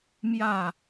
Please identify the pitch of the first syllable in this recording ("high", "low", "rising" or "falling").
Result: falling